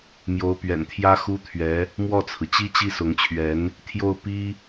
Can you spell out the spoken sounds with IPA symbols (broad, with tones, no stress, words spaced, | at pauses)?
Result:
mjo˧˥ʊ̯pɥɛ̰˨˩nt̪ʰjä˥ xu˥t̪ʰɥɛ˧˥ | mwɔ˥˩t͡sʰɹ̩˩t͡ɕi˥ t͡ɕi˥˩sʊ˧˥ŋt͡ɕʰɥɛ˧˥n | t̪ʰjo˥˩ʊ̯ pi˥